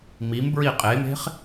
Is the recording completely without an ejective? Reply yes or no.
no